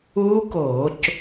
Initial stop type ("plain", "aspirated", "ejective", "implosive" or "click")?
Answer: plain